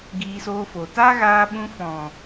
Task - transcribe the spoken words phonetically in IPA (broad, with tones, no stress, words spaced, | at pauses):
ɡiː˧soː˧fo˨ ta˦ɣaː˧ɓũ˧fɔ̃˨